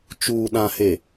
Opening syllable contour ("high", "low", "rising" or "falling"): low